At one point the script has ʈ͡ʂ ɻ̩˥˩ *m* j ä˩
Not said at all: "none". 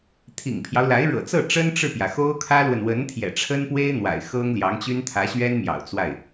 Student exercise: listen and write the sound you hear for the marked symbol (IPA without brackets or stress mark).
p